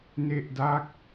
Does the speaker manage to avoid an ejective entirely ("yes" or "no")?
yes